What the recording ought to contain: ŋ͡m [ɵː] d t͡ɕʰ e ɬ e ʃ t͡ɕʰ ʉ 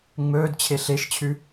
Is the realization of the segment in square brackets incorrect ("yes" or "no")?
no